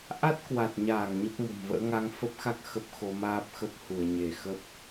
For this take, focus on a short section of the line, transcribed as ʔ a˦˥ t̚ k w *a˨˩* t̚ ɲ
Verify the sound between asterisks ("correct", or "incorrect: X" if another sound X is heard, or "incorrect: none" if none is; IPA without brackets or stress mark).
correct